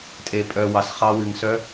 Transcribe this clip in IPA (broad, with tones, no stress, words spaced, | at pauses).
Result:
tʼe˩pʼœ˩ wɑ˩sχɑ˧˥wɨ˩ŋ sœ˧˥